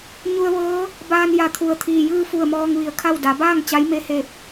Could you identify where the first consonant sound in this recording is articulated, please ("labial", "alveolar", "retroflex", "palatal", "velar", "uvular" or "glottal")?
palatal